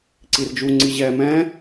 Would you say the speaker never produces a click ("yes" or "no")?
no